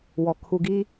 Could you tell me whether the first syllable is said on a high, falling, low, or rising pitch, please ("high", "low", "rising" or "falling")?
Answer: low